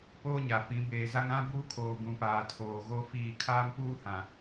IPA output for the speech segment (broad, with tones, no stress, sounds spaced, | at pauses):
p oː˦ ɲ a˨ f ĩ˨˦ b eː˨ z a˦ ŋ ã˦ b uː˦ kʰ oː˨ ɡ ũ˨ p aː˨ tʰ oː˨ ɣ o˦ f iː˦˨ kʰ aː˦ m p uː˦ h ã˨